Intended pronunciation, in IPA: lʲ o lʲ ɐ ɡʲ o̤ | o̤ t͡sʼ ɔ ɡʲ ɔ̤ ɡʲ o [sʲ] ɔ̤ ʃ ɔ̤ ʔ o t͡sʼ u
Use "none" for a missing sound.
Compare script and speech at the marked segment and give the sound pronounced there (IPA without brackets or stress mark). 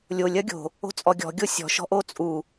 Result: sʲ